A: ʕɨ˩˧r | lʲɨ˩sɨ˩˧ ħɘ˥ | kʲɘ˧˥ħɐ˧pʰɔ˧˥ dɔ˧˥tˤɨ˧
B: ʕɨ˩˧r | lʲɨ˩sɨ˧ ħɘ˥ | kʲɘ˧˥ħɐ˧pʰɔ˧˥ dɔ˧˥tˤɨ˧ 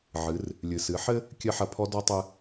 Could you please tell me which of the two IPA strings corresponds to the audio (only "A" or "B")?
A